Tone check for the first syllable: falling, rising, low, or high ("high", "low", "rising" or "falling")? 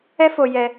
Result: high